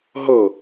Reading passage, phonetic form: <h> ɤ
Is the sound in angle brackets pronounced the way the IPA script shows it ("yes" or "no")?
no